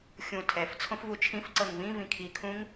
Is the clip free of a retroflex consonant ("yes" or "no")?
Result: yes